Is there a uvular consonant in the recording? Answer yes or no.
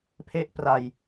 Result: no